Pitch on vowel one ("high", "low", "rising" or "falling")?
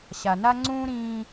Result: low